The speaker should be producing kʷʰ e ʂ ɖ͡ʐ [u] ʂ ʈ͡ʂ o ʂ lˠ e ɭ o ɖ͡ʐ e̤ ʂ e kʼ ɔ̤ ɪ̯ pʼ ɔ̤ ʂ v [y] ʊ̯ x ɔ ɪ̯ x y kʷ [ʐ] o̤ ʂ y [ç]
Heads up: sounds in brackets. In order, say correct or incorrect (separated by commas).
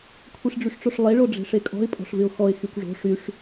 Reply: incorrect, incorrect, correct, incorrect